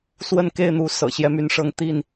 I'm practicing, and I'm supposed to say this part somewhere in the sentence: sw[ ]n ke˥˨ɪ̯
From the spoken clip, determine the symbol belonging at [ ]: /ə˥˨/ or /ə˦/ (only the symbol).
ə˥˨